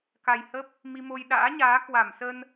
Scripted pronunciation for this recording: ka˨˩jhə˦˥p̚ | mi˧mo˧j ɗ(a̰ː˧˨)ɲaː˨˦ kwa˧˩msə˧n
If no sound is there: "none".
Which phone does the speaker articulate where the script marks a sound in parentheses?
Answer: a̰ː˧˥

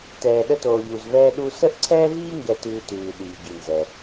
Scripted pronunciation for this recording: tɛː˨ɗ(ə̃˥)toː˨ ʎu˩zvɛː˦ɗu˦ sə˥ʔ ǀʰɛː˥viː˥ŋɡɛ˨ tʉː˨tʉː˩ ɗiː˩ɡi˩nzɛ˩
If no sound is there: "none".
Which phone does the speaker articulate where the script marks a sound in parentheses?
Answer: ə˥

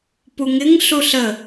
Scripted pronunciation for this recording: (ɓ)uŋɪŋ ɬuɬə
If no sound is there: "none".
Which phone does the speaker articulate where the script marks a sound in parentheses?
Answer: p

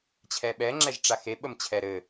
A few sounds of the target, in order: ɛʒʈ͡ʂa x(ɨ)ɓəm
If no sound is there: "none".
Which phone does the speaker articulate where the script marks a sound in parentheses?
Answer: e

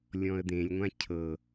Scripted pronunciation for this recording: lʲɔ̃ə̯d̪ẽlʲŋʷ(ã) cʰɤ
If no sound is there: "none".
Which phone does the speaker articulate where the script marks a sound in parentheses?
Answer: ã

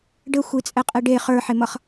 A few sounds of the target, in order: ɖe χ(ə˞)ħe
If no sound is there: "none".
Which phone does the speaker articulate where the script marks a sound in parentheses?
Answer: ə˞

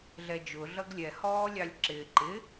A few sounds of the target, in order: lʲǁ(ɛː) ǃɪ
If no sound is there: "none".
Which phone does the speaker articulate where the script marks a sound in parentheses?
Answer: ɪː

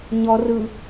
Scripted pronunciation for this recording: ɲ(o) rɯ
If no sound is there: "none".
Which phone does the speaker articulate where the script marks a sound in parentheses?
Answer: ɔ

